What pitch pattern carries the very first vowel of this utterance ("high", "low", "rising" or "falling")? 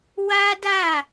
high